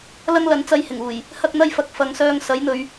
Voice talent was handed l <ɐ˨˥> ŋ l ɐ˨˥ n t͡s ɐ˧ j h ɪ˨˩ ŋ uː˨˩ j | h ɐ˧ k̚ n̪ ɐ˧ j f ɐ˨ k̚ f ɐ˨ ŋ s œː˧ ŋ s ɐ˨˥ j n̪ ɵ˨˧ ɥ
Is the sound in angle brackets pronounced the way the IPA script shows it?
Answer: no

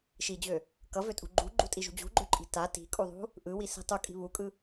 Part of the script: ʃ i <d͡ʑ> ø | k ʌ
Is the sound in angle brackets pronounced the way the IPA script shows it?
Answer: yes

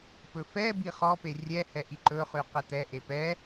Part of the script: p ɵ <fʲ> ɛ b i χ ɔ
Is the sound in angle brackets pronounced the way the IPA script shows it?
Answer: no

